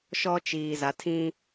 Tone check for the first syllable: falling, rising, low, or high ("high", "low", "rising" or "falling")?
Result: high